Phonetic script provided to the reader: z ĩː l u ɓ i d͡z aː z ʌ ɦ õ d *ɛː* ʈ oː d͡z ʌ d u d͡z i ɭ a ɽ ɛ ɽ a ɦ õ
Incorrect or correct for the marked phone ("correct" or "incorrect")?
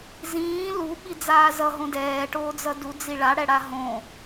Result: correct